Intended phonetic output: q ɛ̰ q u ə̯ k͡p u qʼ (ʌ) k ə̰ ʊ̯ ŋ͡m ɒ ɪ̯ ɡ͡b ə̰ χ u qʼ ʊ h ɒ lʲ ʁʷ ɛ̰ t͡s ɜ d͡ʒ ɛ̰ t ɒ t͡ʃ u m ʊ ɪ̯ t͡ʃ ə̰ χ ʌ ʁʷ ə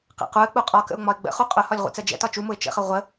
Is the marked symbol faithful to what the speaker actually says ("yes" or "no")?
no